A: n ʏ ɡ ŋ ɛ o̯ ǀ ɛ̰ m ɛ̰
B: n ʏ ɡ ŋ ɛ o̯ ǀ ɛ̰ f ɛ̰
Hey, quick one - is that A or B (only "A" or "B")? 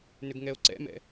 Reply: A